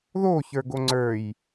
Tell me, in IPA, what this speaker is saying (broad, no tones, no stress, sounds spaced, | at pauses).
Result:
ð o ç ə˞ ɡ o ŋ͡ǀ ə˞ j